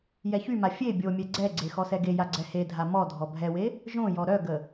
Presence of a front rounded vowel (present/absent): present